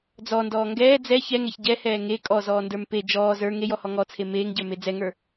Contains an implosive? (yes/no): no